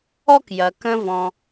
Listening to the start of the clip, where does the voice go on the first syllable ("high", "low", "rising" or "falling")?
high